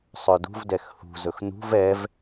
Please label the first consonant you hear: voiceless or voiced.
voiceless